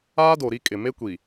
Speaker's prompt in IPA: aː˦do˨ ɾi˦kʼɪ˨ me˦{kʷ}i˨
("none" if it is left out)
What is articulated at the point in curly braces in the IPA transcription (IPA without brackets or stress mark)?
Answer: kʷ